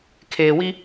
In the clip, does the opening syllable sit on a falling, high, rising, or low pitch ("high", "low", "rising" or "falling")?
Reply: low